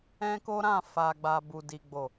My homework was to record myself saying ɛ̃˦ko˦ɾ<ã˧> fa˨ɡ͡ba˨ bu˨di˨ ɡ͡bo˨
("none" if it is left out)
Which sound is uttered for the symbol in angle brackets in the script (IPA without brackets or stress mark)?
ã˦˨